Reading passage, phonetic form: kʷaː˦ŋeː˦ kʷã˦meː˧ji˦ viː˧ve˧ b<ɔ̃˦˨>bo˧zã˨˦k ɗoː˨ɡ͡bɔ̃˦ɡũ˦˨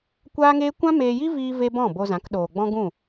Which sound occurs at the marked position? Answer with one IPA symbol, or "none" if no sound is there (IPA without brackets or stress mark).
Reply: ɔ̃˦˨